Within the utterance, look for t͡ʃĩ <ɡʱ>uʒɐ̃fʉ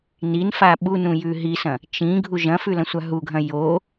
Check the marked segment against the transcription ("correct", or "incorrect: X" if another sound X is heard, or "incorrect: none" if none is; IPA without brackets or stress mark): correct